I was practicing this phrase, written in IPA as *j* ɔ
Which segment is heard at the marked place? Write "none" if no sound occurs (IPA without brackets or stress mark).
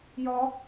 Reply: j